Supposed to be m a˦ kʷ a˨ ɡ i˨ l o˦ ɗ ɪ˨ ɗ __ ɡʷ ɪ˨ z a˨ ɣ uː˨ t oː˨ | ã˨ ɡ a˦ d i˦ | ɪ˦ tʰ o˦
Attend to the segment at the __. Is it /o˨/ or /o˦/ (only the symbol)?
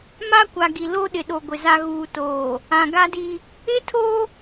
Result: o˨